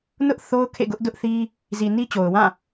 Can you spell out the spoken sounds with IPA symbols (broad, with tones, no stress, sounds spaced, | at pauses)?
n ʊ˦ ʔ θ o˦ ʊ̯ kʰ ḛ˦˨ ɡ ʊ˦ ʔ d ʊ˦ ʔ θ i˦ | z i˨ n i˦ t͡ɕ o˨ ʊ̯ w ã˦˨